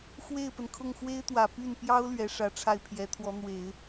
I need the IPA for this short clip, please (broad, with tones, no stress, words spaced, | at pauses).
xwe˥˩ɪ̯pə˩nkʰʊ˥˩ŋ xwe˥ɪ̯t̪wä˨˩ py˥˩npjɑ˥ʊ̯ lɥɛ˧˥ʂä˧˥ʈ͡ʂʰa˥˩ɪ̯pʰjɛ˧˥ t̪ʰwɔ˧˥n̪we˨˩˦ɪ̯